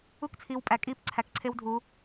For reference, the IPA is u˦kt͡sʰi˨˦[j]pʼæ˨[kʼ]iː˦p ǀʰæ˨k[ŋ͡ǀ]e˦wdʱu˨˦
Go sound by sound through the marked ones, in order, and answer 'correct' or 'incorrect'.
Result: incorrect: w, correct, incorrect: ǀʰ

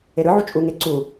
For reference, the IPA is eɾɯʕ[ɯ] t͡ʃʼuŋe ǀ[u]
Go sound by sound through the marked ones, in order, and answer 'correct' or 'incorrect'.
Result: incorrect: u, correct

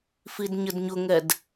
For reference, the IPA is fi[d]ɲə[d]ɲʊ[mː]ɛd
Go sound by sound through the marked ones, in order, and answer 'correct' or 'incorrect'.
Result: correct, correct, incorrect: ŋ

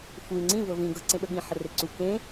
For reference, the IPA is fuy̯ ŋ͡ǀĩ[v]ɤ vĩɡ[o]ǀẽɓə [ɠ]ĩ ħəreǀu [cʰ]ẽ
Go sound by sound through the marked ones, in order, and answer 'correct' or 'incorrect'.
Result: correct, incorrect: ɤ, correct, incorrect: k

